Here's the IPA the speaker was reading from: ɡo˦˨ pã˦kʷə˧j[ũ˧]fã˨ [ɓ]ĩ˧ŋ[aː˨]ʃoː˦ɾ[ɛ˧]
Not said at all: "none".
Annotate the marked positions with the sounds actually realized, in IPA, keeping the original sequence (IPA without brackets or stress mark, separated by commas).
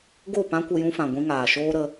ũ˧, ɡʷ, aː˨, ə˧